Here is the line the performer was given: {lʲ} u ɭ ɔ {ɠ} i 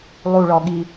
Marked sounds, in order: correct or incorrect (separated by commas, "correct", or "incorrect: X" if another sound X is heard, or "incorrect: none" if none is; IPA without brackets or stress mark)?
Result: incorrect: lˠ, correct